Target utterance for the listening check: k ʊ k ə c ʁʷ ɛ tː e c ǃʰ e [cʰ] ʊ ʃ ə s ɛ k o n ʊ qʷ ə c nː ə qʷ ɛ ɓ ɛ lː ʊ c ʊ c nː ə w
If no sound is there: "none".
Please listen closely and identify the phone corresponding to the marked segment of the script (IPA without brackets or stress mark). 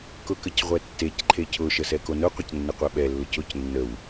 cʰ